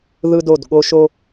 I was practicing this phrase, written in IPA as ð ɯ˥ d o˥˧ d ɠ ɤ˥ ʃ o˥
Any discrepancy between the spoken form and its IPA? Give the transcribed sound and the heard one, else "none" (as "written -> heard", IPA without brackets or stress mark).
ɤ˥ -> o˥